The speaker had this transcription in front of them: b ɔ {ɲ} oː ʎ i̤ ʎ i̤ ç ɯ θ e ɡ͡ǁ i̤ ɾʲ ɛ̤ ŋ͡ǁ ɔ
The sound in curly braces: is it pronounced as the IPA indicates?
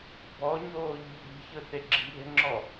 yes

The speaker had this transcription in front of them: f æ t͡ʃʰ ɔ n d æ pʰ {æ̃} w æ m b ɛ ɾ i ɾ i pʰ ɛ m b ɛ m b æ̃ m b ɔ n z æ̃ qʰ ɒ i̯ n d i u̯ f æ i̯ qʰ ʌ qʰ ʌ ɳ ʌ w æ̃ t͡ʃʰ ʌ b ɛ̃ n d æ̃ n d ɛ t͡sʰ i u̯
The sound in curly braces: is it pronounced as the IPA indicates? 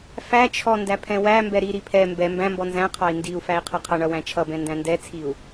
no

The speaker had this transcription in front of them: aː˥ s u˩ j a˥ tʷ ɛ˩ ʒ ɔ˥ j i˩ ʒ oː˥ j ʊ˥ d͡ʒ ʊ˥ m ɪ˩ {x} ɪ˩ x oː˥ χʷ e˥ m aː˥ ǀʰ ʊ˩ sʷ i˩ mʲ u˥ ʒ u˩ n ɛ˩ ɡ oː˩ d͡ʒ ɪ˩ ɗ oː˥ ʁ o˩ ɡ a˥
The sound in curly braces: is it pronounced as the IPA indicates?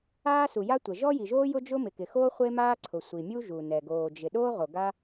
no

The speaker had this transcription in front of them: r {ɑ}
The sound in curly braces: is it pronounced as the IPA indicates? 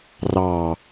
yes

